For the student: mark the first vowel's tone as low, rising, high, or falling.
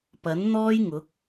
rising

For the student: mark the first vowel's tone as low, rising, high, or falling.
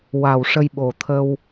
low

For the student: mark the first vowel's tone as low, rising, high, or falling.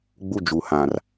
high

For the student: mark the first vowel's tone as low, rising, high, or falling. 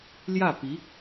falling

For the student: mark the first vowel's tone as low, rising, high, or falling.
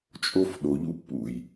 high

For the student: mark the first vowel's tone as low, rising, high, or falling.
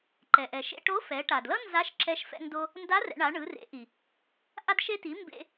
low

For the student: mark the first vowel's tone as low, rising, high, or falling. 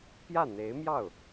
falling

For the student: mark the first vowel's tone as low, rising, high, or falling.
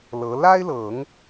rising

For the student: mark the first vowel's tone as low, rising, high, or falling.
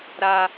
high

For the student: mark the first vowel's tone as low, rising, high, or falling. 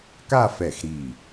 falling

